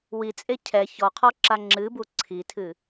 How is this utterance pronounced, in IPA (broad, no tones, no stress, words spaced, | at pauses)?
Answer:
wit͡sʼe cʰɛ çɔqʰɔǁa ŋ͡ǁɨbu ǀʰitʰɨ